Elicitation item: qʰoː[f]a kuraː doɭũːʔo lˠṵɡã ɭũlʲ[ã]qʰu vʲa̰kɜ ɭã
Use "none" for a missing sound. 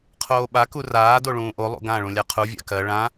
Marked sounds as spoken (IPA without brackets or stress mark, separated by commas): ɓ, a